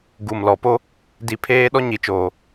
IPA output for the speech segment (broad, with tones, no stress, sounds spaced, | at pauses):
ɡ u˨ m l ɔ˨ p o˦ | d i˨ pʰ eː˦ ɗ ɔ˦ ɲ i˨ t͡ʃ oː˨